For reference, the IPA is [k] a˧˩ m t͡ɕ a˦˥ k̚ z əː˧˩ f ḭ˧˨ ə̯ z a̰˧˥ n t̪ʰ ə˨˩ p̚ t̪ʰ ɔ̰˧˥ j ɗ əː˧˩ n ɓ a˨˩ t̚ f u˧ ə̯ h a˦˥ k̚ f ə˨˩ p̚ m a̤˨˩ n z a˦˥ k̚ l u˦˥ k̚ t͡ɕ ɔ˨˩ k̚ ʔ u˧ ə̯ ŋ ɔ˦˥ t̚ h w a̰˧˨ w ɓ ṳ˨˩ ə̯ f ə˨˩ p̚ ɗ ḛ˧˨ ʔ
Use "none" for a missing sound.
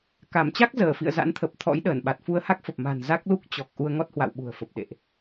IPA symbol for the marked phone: k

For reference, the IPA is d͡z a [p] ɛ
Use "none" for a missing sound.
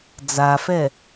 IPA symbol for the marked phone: f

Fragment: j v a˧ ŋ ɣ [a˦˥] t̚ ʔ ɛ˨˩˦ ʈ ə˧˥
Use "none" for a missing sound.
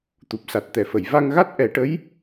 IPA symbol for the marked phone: a˦˥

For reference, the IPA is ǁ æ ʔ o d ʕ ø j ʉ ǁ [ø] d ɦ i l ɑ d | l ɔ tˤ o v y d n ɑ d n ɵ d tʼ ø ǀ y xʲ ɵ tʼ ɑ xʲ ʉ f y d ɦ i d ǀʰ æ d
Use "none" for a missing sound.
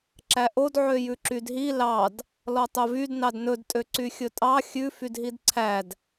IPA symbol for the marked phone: y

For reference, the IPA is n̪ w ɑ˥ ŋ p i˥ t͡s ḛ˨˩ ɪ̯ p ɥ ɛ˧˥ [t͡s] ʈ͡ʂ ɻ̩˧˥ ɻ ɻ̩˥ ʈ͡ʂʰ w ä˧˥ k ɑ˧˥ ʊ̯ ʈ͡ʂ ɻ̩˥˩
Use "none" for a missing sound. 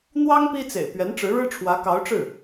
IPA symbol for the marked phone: n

